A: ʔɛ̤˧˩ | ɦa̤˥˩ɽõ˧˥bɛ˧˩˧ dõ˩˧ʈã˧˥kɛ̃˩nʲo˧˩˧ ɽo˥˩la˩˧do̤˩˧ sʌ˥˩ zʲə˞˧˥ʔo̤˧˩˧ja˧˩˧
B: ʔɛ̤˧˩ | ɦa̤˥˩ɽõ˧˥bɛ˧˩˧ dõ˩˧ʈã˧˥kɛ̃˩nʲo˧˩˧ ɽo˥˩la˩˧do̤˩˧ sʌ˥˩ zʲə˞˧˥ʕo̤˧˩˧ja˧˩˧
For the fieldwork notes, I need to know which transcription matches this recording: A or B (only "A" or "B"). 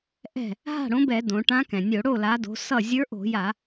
A